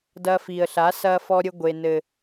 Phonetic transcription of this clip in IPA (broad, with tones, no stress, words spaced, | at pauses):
dɐː˧fiː˨ə̯ɬa˨˦ sɐː˧fɔ˧ɾʲɘ˧ ɡʷe˨nɘ˨